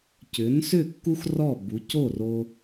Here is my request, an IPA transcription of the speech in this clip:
c ʏ˩˥ n s ʏ˥˩ kː u˥ x r ɔ˥˩ b u˩˥ c o˥˩ r o˧

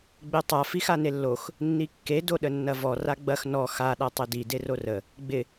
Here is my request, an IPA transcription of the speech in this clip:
ɡ͡b e tˤ a f i x a n e lː o x | nː i kː e d o ɗ ə nː ɐ v ɔ r a ɡ͡b ɐ x n ɔ x a ɗ a tˤ e d i d e r o r ə | ɡ͡b ɪ

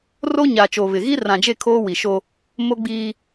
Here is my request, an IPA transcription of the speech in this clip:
r o˦ ɲ a˨ t͡ʃ oː˨ β ɪ˨ ɣ i˦ r ã˨ d͡ʒ e˦˨ kʰ oː˦ w i˨ ʃ o˦ | m o˦ ɡ͡b iː˦

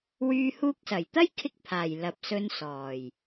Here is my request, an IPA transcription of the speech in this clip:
w yː˧ h uː˧ k̚ s ɐ˨˩ j t̪ ɐ˥ j kʰ ɪ˥ k̚ pʰ aː˨˩ j l ɐ˨˥ p̚ s ɵ˧ n s ɔː˨˩ j

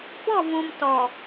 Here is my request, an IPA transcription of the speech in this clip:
b ɔ˦˨ v ũ˨ m t ɔ˨

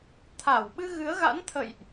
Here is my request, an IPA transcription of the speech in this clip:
t̪ʰ a˧˩ w ɓ ɨ˧ ɣ ɨ˨˦ ə̯ ɣ a̰˧˥ n t̪ʰ ə̰˧˨ j ʔ

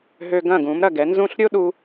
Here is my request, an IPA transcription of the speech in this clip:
ɦ ø˧ ɡ ɐ̃˥˩ ɡ ũ˩˥ m ɾ ɐ˥˩ ɡ ɛ˩˥ n z ũ˥˩ ɬ ɾʲ o˥ ɗ u˧

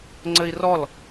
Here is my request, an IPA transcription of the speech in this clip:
ŋ͡ǀ ɘ i̯ r ɔ l

